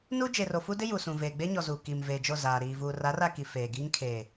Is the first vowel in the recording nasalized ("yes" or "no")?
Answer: no